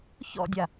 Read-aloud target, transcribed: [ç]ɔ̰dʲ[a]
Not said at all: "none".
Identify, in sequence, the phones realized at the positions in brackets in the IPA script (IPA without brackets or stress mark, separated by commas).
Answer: ç, a